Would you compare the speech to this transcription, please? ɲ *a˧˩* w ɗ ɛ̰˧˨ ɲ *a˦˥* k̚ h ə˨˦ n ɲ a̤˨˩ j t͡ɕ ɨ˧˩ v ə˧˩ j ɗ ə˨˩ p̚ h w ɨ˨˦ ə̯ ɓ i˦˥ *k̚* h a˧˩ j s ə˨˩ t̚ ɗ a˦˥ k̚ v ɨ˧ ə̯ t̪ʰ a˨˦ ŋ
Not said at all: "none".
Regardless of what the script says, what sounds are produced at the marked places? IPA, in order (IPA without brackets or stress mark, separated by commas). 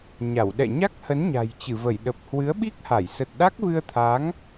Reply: a˧˩, a˦˥, k̚